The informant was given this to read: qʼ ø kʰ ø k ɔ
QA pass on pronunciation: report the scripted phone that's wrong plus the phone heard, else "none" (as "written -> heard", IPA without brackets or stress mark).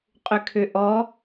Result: k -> ʔ